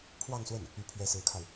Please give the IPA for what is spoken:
pʰ w ɑ˥˧ ŋ s w ə˥˩ n | y˧˥ pʰ ɥ ɛ˧˥ s ɹ̩˧˥ kʰ a˧ ɪ̯

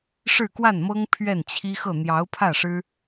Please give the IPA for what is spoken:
ʂ ɻ̩˥˧ k w a˥˩ n m ɤ˥ ŋ pʰ ɥ ɛ˥˩ n t͡ɕʰ i˥ x ɤ˥˩ n̪ j ɑ˧˥ ʊ̯ pʰ ä˥˩ ʂ ɻ̩˥

